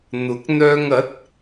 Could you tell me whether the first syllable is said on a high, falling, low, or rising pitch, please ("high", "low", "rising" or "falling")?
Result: rising